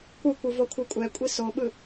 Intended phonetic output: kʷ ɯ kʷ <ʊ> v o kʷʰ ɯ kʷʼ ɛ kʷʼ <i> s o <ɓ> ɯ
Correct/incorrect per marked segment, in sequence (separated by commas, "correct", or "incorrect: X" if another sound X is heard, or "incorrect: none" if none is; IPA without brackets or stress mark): incorrect: ɯ, correct, correct